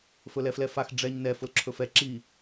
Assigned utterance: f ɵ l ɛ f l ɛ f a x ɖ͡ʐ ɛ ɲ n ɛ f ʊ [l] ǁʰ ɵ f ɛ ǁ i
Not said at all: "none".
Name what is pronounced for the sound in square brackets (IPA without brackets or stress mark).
l